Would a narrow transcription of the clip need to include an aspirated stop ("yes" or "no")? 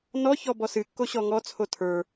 yes